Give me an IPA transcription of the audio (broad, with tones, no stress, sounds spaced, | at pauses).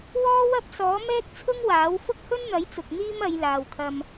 w ɔː˥ w ɐ˥ p̚ s ɔː˨˥ m ɛː˥ k̚ t͡sʰ ʊ˥ ŋ w aː˨˥ w f ʊ˥ k̚ h ɵ˥ n n̪ ɐ˨˥ j t͡s ʊ˨ k̚ n̪ iː˥ m ɐ˨˧ j l aː˨ w kʰ ɐ˧ m